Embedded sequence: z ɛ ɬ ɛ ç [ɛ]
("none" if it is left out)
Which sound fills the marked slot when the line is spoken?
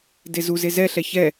ɛ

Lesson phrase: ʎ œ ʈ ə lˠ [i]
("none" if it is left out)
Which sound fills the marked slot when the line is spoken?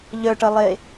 e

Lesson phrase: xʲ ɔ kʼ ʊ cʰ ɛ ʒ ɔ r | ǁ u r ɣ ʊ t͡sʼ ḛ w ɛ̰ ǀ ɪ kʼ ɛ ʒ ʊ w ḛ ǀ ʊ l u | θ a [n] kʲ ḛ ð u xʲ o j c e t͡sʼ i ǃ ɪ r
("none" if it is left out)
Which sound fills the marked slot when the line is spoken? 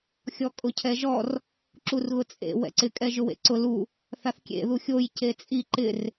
θ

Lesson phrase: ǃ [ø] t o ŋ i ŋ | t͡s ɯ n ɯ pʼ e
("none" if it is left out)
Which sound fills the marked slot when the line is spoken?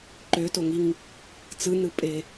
ø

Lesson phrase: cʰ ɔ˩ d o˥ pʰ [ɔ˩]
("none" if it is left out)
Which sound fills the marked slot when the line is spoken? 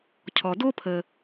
ə˩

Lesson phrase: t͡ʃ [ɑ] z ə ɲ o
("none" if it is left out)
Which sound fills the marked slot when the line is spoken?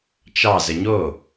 ɑ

